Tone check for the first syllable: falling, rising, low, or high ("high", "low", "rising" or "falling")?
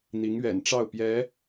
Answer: rising